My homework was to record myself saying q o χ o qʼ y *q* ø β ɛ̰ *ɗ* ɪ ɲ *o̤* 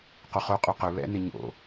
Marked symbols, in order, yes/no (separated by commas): yes, no, no